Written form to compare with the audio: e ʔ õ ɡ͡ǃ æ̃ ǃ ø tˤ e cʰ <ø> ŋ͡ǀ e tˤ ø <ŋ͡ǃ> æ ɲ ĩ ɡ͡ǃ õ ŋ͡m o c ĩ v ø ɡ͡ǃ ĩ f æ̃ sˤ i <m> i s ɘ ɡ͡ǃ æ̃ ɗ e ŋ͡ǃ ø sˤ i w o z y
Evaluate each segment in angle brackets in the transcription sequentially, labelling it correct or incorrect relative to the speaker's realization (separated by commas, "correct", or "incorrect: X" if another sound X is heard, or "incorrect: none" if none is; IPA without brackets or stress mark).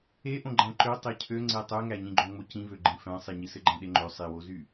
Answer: correct, incorrect: ŋ, incorrect: ɲ